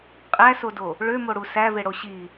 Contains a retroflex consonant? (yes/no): yes